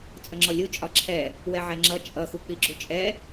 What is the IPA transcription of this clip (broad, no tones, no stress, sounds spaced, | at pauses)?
t͡sʼ ə ŋ͡ǁ ɔ lʲ u t͡ʃʼ ɒ ǁʰ ɛ | w ɛ ʕ ɛ ŋ͡ǁ ʌ t͡ʃʼ ʌ x u k͡p i ɡ͡ǁ u t͡ʃʼ ɛ